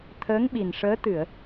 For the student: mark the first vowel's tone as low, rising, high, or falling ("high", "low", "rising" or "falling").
rising